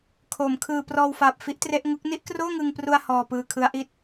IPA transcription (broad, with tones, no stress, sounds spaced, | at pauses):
kʰ o˩˦ m kʰ ɯː˧ p r ɔː˧ w f a˨˩ p̚ f i˦˥ ʔ t r e˦˥ ʔ ŋ u˦˥ k̚ n i˥˩ ʔ k r oː˥˩ ŋ ɯ˧ ŋ p r u˧ a̯ h ɔː˧ p ɯː˧ kʰ ɯ˦˥ a̯ ʔ i˥˩ t̚